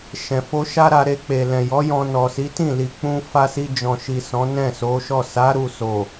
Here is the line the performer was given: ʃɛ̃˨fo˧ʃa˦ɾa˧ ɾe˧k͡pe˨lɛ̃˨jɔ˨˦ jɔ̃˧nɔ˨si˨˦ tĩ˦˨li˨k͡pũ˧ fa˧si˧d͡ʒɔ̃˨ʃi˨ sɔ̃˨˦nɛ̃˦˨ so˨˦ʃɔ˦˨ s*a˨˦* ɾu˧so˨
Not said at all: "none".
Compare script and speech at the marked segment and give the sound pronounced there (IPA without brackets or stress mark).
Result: a˨˦